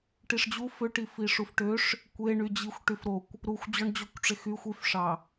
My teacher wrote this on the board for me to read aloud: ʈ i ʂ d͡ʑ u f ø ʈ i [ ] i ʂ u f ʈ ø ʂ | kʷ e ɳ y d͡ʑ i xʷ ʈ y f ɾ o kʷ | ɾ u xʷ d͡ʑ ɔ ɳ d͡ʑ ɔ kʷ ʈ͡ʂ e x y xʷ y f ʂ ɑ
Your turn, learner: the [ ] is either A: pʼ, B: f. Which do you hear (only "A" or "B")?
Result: B